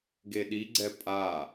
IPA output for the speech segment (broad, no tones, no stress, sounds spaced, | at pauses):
ɡ e ɗ i ɡ͡ǀ ɛ pʼ a